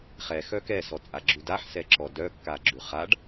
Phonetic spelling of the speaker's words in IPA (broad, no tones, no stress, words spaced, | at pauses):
χɛxœ kɛsɔt͡sʼaɡ͡ǁʉ daħsɛǁɔ dœkːaɡ͡ǁʉ χaɖ